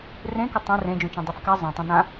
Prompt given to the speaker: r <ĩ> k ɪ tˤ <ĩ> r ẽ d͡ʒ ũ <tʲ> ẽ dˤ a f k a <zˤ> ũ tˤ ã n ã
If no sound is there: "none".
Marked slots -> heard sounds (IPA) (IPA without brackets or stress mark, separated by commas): ẽ, ẽ, t͡ʃ, zˤ